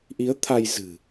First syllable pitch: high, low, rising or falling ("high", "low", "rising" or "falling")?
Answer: rising